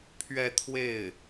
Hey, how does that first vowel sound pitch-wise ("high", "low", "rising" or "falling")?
falling